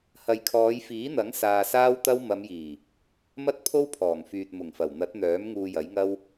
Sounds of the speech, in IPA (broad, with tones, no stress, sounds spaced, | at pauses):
h ɐ˨ j kʰ ɔː˨˧ j f iː˨˥ n̪ ɐ˨˥ ŋ s aː˧ s aː˥ w t̪ ɐ˥ w m ɐ˨˧ m j iː˨˩ | m ɐ˥ t̚ pʰ o˥ w pʰ ɔː˨˩ ŋ f yː˨ t̚ m ʊ˨˩ ŋ f ɐ˨˩ w n̪ ɐ˨˥ t̚ n̪ œː˨˥ m ŋ uː˧ j ɐ˨˥ j ŋ ɐ˥ w